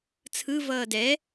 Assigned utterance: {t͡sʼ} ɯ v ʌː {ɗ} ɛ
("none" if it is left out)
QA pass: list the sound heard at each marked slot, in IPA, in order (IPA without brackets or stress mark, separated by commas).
t͡sʰ, d